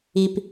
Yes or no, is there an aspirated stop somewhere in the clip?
no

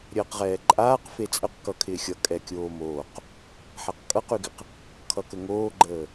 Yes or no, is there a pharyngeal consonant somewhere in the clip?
yes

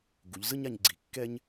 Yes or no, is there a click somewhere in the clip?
yes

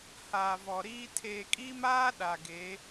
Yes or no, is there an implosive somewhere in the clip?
yes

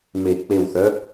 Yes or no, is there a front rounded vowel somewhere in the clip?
yes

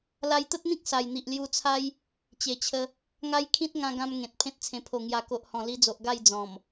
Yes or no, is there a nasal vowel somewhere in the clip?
yes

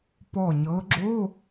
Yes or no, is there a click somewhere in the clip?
yes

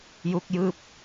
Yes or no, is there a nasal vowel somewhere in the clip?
no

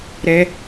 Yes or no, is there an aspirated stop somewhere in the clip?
no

